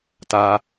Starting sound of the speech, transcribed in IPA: t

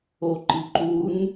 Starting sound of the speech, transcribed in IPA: o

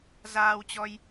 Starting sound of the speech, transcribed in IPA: z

